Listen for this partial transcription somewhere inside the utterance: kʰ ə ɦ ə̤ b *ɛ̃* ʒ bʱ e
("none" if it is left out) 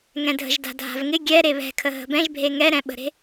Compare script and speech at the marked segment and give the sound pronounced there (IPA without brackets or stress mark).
ɛ̃